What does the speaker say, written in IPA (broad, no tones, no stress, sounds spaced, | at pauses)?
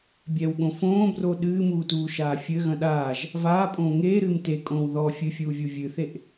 bʲ ɛ w ɠ õ f õː b r o ɗ ɨː m uː t uː ʃ aː fʲ ɘ ɣ ɐ̃ ɗ aː ʒ | v aː pʼ õː ŋ eː ɾ ɨː m t e kʼ õː w ð ɔ fʲ ɨ fʲ uː vʲ u vʲ ɨ θ e ʔ